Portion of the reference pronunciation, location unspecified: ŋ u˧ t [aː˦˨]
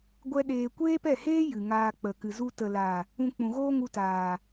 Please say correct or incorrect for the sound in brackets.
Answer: incorrect